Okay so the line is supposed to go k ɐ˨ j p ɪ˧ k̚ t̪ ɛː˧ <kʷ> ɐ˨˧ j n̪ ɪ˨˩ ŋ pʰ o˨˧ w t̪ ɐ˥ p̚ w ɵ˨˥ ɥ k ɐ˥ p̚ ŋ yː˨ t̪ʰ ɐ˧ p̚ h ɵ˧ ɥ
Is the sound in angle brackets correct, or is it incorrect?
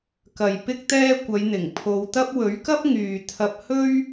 correct